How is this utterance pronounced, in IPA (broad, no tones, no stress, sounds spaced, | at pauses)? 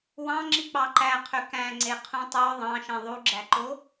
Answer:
w ɑ̃ ŋ͡ǁ i k͡p ɑ ǃ æ qʰ ø k æ̃ ŋ͡ǀ e qʰ ũ tˤ ø ðˤ ɑ̃ ʃ ẽ ðˤ u ɡ͡ǁ æ ǃ o